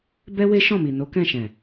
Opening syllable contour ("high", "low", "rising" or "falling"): high